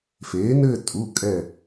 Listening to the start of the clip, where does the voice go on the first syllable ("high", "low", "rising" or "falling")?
rising